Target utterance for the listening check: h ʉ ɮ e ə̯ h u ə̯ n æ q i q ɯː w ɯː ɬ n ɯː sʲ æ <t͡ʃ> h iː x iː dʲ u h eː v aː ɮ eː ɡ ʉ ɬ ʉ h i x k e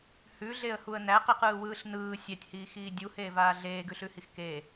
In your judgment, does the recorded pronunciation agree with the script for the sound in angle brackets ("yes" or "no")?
no